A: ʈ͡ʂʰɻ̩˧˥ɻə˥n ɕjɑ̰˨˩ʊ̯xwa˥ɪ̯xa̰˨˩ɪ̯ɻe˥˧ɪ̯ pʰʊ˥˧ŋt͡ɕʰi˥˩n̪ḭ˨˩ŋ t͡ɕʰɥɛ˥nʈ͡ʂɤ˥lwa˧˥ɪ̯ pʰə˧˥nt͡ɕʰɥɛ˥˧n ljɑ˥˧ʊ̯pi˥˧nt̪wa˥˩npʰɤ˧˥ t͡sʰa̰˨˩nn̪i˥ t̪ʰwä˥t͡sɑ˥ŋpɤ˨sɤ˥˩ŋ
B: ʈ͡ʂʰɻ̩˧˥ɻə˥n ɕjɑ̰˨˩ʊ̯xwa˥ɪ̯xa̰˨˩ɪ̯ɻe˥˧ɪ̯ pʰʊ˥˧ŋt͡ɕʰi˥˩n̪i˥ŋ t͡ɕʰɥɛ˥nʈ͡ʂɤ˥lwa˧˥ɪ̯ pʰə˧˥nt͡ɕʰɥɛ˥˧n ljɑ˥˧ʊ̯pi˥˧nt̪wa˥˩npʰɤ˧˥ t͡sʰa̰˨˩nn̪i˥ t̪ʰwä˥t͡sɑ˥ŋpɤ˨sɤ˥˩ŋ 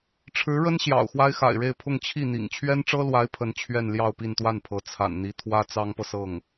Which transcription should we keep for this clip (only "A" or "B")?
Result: A